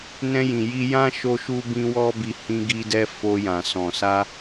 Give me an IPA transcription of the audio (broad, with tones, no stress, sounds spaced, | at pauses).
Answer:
n ɛ̃˧ j ĩ˨ j i˧ j ã˦ ʃ o˦ ʃ u˦ b ĩ˦ w ɔ˦ b i˧ h ĩ˧ ɡ i˧ d ɛ˧ f o˧ j ã˨ s ɔ̃˨ s a˧